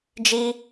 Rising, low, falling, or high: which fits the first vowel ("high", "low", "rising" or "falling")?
high